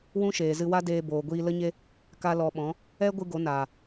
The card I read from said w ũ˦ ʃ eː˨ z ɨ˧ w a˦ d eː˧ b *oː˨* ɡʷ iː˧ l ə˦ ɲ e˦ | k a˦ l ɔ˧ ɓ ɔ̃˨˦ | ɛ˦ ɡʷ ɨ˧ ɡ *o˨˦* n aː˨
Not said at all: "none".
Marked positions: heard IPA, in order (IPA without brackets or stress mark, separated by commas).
oː˨, o˨˦